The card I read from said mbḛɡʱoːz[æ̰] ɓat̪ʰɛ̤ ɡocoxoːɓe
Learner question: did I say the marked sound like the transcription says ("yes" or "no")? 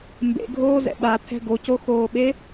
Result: no